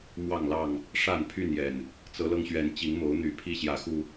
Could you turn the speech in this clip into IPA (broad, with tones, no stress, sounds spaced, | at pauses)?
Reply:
m w ɑ˥˨ ŋ l ɑ˥˨ ŋ | ʂ a˥˨ n pʰ y˥˨ n j ɛ˨˩ n | t͡s ɤ˨˦ l ɤ˧ ŋ ɕ ɥ ɛ˨˦ n t͡ɕ i˨˦ ŋ m o˨˦ ʊ̯ n̪ y˨˩ pʰ i˥˨ ɕ j ä˨˦ x u˨˩